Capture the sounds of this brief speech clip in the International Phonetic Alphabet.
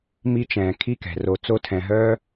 m i˧ t͡ʃ ɛ̃ː˨ kʰ i˦ k ɛ̤˨ r o˨ t͡s o˧ tʰ ɛ̃˨ ɦ œː˦

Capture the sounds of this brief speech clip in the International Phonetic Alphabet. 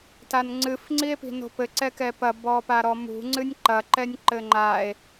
t a n ŋ͡ǀ ɨ f ŋ͡ǀ i e̯ p i̤ n o̤ p ɘ ǀ ɛ k ɛ p ɐ b ɔ p a ɾ ɔ m ṳ ŋ͡ǀ ɨ nʲ ǃ ɐ ǃ ɛ nʲ ǃ ɘ ŋ͡ǃ a e̯

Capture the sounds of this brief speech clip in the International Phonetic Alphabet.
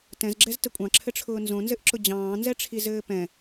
t ɛ̃ z ɡ͡ǁ ɛ z t ə kʷʼ ɑ̃ ǁʰ ɘ ʈ͡ʂʰ ʊː n z õ n z ɘ ʔ ǁ ʊ d͡ʑ ɑ̃ː n z ɛ ʈ͡ʂʰ i z ɘː p ɛ̃

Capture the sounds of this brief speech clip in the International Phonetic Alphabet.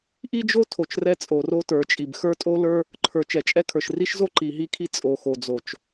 ʔ i˦ d͡ʒ o˦ tʰ o˨ t͡ʃ r ɛ˦ t͡sʼ o˨ r o˦ t ə˞˨ t͡ʃʼ i˨ b x ə˞˦ tʼ o˦ l ə˞˦ | ǃʰ ə˞˨ t͡ʃ ɛ˨ t͡ʃʼ ɛ˦ kʰ ə˞˨ ʃ r i˦ ʃ z o˦ ǃ i˨ ɦ i˦ kʰ i˦ t͡sʼ o˨ x o˨ d͡z o˨ t͡ʃ

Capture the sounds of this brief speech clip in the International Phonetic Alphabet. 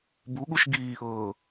b u ɠ u ʃ ɡ iː ʔ ɤː

